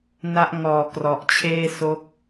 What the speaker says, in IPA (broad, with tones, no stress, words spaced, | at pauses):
na˦˥ʔ ŋɔː˨˩ krɔ˨˩ʔt͡ɕʰeː˥˩ so˦˥k̚